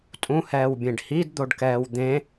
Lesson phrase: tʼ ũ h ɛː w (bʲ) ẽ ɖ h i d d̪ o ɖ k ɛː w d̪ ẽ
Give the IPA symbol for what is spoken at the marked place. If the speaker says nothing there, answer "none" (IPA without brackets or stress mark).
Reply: bʲ